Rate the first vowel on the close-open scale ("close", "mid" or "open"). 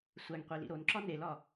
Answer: open